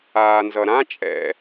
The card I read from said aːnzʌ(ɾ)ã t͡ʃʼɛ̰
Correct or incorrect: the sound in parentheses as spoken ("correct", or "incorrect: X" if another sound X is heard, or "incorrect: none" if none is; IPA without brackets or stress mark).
correct